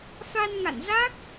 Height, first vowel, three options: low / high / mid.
low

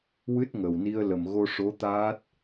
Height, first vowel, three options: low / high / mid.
high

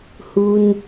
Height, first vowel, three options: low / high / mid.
high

